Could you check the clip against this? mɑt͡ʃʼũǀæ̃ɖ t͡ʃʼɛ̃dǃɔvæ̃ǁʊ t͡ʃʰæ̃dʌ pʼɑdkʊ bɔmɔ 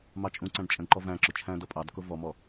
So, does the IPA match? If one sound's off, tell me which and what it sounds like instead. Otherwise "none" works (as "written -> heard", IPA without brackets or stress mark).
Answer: b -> v